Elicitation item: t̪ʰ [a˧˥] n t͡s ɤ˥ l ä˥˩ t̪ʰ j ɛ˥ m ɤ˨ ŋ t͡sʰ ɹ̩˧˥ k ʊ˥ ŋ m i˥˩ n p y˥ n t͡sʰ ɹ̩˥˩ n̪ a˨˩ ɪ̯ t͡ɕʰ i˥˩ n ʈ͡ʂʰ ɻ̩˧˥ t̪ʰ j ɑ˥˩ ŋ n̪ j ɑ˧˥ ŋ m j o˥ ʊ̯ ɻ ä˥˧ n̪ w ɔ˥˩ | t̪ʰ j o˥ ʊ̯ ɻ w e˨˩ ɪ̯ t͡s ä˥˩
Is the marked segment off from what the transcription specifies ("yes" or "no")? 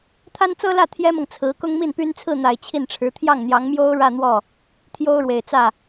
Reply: yes